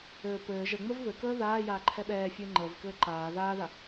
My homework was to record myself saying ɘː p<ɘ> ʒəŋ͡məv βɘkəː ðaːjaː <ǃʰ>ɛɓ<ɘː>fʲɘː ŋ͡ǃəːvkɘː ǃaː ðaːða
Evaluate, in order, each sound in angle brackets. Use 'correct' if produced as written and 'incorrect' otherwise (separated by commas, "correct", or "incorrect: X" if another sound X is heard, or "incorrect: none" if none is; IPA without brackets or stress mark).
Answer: incorrect: ɘː, correct, incorrect: ɛː